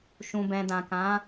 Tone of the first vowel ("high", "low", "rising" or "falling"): low